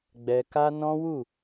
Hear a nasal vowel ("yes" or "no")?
yes